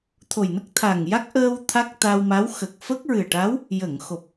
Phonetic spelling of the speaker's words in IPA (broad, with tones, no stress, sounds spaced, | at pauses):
t̪ʰ o˨˩ j n ə˦˥ k̚ t̪ʰ a˨˩ ŋ j a˦˥ k̚ ʔ əː˧ w t̪ʰ a˦˥ k̚ t̪ a˧ w m a˧˥ w x ə˨˩ k̚ f ə˦˥ k̚ ɹ ɨ˨˩ ə̯ ʈ a˧˥ w | j ə˨˩˨ ŋ x o˨˩ p̚